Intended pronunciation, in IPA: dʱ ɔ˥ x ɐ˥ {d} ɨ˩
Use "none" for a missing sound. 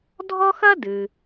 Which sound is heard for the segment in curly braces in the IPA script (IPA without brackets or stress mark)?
d